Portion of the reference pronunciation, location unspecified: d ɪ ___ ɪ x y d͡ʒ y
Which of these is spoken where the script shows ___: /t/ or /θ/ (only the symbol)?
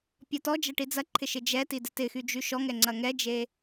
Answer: t